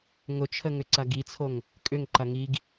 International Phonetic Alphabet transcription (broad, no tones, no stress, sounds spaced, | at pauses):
ŋ ʊ t͡ʃʰ ə ŋ ʏ ǀ ɐ ɡ i t͡sʰ o ŋ | kʼ ʏ ŋ ǃ ɐ ŋ i ɡ